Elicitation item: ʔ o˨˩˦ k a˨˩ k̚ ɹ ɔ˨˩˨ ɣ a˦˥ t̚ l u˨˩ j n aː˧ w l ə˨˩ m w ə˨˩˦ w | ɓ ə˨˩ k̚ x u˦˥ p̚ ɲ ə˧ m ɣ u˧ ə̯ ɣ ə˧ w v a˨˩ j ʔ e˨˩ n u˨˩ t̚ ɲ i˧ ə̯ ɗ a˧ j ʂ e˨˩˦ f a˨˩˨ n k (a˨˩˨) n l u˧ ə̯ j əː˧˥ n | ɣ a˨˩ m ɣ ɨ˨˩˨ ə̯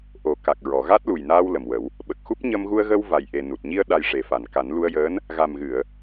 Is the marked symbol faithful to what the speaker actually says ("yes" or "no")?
no